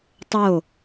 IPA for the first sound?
tˤ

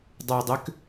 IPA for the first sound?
dˤ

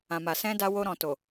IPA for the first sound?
ã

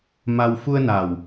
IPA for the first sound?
m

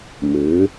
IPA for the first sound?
m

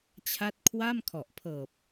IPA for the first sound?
t͡ɕʰ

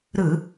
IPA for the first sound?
ɾ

